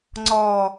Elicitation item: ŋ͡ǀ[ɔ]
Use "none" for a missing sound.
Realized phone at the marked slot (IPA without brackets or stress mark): ɔ